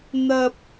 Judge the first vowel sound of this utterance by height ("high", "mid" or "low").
low